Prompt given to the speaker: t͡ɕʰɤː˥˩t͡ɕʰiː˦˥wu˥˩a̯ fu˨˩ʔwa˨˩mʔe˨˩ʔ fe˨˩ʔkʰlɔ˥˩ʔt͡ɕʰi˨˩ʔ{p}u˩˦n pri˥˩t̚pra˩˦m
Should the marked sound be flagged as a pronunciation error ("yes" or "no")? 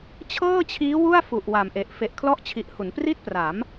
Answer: yes